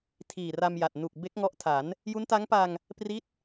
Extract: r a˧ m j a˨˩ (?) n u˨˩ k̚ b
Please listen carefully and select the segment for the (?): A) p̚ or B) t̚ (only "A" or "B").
B